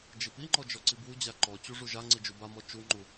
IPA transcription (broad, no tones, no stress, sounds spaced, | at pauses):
d͡ʒ i p i ŋ͡ǃ ɔ d͡ʒ ɔ ǀ i b w u d͡ʑ a ǃ ɔ t͡ɕ u ʐ u ʒ a ŋ͡ǀ i d͡ʒ u b a m ɔ t͡ʃ u ŋ͡ǃ u